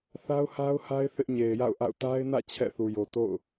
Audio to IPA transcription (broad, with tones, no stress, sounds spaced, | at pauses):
θ a˦ ʊ̯ h a˦ ʊ̯ h a˦ ɪ̯ θ ɪ˦ ʔ ɲ e˨ ɪ̯ j a̰˦˨ ʊ̯ ʔ a̰˦˨ ʊ̯ t a˦ ɪ̯ n ä̰˦˨ t͡ɕʰ ɛ̰˦˨ θ u˨ j o˨ t o̰˦˨ ʊ̯